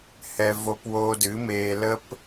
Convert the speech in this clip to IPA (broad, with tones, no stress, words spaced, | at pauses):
hɛ˧vo˧p woː˧dɨ˨˦meː˧ lə˦p